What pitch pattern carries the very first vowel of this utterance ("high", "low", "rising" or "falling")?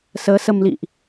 rising